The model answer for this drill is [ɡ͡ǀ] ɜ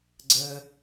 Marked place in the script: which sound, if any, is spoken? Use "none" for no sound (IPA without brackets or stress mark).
ɡ͡ǀ